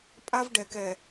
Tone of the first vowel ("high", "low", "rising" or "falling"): high